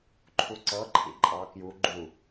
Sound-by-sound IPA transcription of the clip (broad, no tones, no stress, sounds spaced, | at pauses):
ǃʰ u ǀ ɤ ǃʰ ḭ ǃʼ ɑ k j u ɡ͡ǃ u